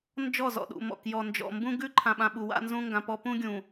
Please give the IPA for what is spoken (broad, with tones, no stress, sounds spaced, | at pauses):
n d͡ʒ ɔ˦˨ z ɔ̰˨ ɗ ṵ˨ m ɔ̰˨ k j ɔ˨ n d͡ʒ ɔ̰˨ m b ũ˦ ɡ ʉ˦˨ ǃʰ ã˨ ɓ ã˨ ɓ u˨ w a̰˦ n z ũ˦ ŋ ɡ ã˨ p ɔ˦ p ũ˦ ɡʲ ũ˨